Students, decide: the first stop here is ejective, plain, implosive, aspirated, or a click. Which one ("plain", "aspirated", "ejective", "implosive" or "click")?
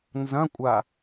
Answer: ejective